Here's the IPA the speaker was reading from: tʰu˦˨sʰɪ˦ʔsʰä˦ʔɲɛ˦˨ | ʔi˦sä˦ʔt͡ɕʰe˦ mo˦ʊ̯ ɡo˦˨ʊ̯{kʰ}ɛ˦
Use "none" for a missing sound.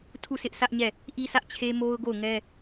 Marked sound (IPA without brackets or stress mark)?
ŋ